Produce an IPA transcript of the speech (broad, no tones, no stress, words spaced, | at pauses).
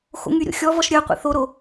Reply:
xo̰ŋyɾʲo̰ xʲɔvɔʃ ɾʲœ qʷḛθoɾo